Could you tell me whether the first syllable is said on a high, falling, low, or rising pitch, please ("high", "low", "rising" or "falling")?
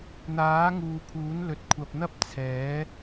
rising